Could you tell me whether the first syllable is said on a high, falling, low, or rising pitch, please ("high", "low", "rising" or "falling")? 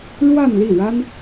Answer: falling